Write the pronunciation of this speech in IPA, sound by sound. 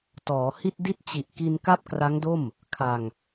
t ɔː˩˦ h i˥˩ t̚ d i˥˩ t̚ t͡ɕ i˨˩ ʔ k i˧ n k a˥˩ p̚ k r a˦˥ ŋ d o˥˩ m | kʰ a˧ ŋ

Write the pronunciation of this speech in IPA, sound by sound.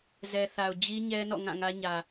z ɛ˨ θ a˨ ʊ̯ d͡ʑ i˦ ɲ ɛ˦ n ɔ̰˦˨ ŋ ã˦˨ ŋ ä˦ ɲ ä˨

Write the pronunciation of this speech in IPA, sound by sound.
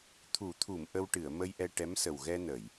t̪ʰ u˨˩˦ t̪ʰ u˨˩˨ m ʔ ə˧ w ʈ ɨ˨˩˨ ə̯ m ə˧ j ʔ ɛ˧ ʈ ɛ˧˥ m s ə˨˩ w ɣ ɛ˧ n ə˨˩˨ j

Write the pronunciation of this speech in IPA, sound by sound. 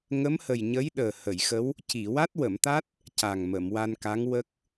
ŋ ə˧˥ m h ə˨˩ j ɲ ə˧˥ j ɗ əː˨˩ h ə˨˩˨ j x ə˧˥ w | c i˨˩˨ w a˦˥ t̚ w ə˨˩˨ m t̪ a˦˥ t̚ | c a˨˩ ŋ m ə˨˩˨ m w a˧ n k a˧˥ ŋ w ə˦˥ k̚

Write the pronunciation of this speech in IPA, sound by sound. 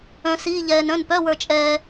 œ̃˧ s iː˧˥˧ ʎ ɛː˧ n œ̃˧˥˧ n p œ˧˥˧ w ə˞˧ t͡ʃʼ ɛː˧

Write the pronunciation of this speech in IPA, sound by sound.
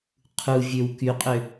qʰ u vʲ ø w k y qʼ ø

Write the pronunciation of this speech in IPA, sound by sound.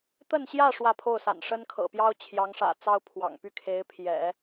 t̪ ə˥˧ n ɕ j ä˥˧ ʂ w ä˥˧ pʰ o˥˩ ʊ̯ s a̰˨˩ n ʂ ə˥ n kʰ ɤ̰˨˩ p j ɑ˥ ʊ̯ t͡ɕʰ j ɑ˧˥ ŋ ʂ ä̰˨˩ t͡s ɑ˥ ʊ̯ pʰ w ɑ̰˨˩ ŋ p y˥˩ kʰ e˧˥ ɪ̯ pʰ j ɛ̰˨˩˦

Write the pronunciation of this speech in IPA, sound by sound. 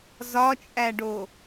z ɒ t͡ʃʼ æ ɖ o

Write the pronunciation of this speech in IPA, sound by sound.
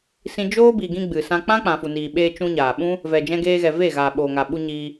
s ĩ˧ d͡ʒ oː˦ b i˨ ɡ ĩ˧ ɡ͡b ɨ˨ s ã˦ k͡p ã˦ k͡p ã˨ f u˨ n iː˨ ɓ eː˧ t͡ʃ ũ˧ ɲ aː˨ ɓ ũ˦ | v ɛ˨ d͡ʒ ɛ̃˧ ɡ eː˧ ɣ ɛ˨ v e˦˨ ɣ aː˨ ɓ oː˨ ŋ a˨ ɓ u˧ ɲ iː˧

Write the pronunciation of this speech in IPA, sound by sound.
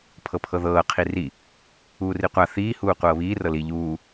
pʰ ɤ pʰ ɤ ð ɤː qʰ i r i | uː r i qʷ a θ iː h uː qʷ ɤː β iː r ɤ l i ʎ uː

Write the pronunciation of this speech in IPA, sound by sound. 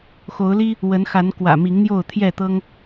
x o˨˦ ʊ̯ l i˦ | w ə˨˦ n x a˨˦ n k w ä̰˨˩ m i˨˦ ŋ n̪ j o˥˨ ʊ̯ t̪ʰ j ɛ˥˨ t̪ ɤ˦ ŋ

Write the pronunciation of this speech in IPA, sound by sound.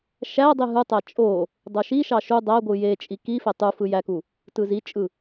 ʃ æ dˤ i ɦ ɯ tˤ æ t͡ʃʼ o | dˤ o ʃ i ʃ ɑ ʃ u dˤ æ ɡʷ ɯ j e t͡ʃʼ i k i f e tˤ u f ɯ j æ k u | t ɯ z i t͡ʃʼ ɯ

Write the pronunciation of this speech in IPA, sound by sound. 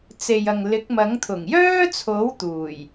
t͡s e˨ j ɐ˨ ŋ l ɪ˨˥ k̚ m ɐ˨˥ ŋ t̪ʰ ʊ˨˩ ŋ j œː˥ t͡sʰ o˨˥ w t̪ uː˨˩ j

